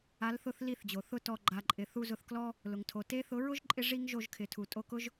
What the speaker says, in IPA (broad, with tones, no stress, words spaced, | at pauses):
a˨˦lθʊ˧θ li˦˨θd͡ʑo˨θʊ˦tɔ˧ ɡ͡ǃa˨ǃʼɪ˨ θu˧zʊ˧θklɔ˦ | lʊ˨ŋtʰo˨ te˧θʊ˨˦ɹʊ˦ʒǃʼɪ˧ ʐi˦ŋʒo˧ʒkʰɪ˨tʰu˨ tʼo˧kʊ˦ʒ